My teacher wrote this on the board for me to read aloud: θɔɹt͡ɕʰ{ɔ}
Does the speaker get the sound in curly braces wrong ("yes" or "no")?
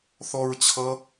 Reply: yes